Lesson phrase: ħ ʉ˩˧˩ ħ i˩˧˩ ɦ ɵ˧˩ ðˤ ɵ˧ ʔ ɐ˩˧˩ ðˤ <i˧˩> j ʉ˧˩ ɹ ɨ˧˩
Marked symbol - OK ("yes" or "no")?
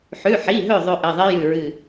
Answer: no